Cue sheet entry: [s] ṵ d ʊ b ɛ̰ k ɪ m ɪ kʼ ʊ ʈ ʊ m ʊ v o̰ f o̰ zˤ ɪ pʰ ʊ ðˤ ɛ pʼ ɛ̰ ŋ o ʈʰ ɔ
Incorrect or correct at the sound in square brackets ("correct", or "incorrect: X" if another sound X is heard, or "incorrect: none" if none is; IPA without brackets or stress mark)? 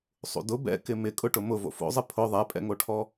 incorrect: sˤ